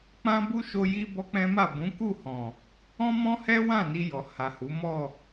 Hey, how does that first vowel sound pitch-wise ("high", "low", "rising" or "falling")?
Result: high